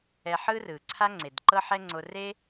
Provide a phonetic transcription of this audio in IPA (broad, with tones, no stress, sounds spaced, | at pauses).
ɛ˧ ħ ɯ˥ r ɯ˩ ǀʰ a˥ ŋ͡ǀ e˩ d ǃ ɤ˥ ħ ɛ˥ ŋ͡ǀ o˧ r e˥